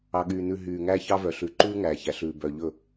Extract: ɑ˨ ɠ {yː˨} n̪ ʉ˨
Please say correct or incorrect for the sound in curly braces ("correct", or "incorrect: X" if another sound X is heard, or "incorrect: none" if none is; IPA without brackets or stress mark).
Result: correct